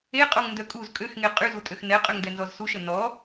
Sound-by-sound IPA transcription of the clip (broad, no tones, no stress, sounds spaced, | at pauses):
e qʼ o ŋ n d œ kʼ u z kʼ ø x ŋ e qʼ y z u tʼ ø x n ɛ qʼ ø ŋ d ɛ n z ɔ z s u ʃ ə n ɔ